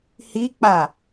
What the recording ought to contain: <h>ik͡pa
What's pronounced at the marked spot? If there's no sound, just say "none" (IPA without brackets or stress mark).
h